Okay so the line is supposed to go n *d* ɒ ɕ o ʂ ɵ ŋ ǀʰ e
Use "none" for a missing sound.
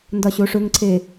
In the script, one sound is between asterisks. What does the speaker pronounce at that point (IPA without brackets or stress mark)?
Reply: d